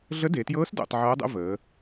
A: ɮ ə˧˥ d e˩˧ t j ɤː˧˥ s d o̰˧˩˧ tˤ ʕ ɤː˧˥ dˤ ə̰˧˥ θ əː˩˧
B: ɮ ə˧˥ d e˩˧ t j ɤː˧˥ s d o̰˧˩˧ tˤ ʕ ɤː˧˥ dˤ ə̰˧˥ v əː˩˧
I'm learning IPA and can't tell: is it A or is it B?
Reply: B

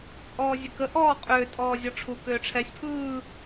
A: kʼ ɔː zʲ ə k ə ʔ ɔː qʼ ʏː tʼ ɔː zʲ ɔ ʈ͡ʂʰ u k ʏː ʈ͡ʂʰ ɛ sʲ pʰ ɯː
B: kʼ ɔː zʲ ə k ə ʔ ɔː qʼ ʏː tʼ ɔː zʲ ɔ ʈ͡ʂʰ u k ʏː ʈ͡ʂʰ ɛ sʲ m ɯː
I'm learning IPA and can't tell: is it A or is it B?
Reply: A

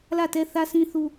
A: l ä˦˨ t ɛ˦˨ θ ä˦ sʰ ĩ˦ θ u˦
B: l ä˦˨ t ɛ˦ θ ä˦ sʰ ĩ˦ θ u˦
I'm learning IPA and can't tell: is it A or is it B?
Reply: B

